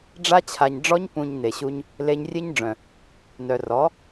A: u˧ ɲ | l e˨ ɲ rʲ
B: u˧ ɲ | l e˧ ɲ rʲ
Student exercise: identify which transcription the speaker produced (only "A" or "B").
B